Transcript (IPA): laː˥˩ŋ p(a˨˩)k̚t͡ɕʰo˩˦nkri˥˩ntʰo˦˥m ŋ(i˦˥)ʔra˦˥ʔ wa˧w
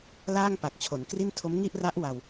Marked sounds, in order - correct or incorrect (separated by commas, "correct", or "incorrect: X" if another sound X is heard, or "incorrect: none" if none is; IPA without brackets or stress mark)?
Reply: correct, incorrect: i˥˩